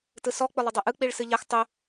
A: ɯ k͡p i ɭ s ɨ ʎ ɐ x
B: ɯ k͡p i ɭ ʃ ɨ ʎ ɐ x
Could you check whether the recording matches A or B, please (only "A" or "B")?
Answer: A